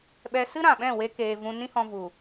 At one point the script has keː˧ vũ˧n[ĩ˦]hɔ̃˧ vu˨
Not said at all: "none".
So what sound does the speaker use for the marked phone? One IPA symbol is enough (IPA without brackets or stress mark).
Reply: ĩ˦